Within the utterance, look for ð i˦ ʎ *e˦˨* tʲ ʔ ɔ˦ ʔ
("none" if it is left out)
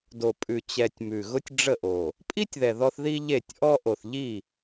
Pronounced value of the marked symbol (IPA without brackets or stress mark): e˦˨